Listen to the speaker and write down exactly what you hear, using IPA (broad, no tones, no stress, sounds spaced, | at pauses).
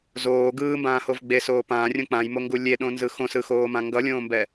z oː ɡ ɯː m b ãː h o v ɡ͡b e s oː p ãː rʲ õ k͡p ã j m o ŋ ɡ u lʲ e ɗ õ n z ɯ x õ s ɯ x oː m ã ŋ ɡ ʌ lʲ õː m b ɛ